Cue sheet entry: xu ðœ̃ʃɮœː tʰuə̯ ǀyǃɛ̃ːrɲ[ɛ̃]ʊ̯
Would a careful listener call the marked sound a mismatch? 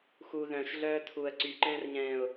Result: yes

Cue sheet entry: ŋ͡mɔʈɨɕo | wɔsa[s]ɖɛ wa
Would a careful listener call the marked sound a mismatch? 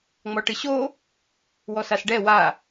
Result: no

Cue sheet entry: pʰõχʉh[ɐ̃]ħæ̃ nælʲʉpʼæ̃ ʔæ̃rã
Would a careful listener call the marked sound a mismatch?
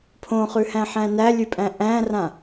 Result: yes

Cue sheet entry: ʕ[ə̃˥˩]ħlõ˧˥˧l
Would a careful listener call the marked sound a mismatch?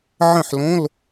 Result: no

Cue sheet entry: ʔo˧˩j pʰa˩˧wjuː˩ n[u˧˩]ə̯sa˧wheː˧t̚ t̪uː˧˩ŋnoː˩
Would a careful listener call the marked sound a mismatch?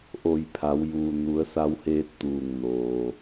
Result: yes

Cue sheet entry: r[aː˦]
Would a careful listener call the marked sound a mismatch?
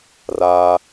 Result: no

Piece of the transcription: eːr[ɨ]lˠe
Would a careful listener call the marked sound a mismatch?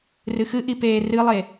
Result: no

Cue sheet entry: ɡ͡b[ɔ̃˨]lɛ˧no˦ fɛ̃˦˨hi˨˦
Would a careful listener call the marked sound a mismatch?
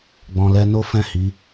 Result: no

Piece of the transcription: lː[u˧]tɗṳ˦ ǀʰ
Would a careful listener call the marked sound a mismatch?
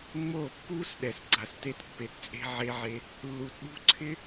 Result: yes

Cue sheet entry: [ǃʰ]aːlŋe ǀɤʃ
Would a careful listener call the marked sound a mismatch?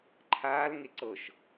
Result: no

